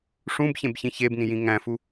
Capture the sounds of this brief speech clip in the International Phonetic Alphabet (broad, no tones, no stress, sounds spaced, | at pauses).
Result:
ʂ ũ b ç ẽ b ç ĩ ç e b n ĩ j ĩ ŋ æ̃ f u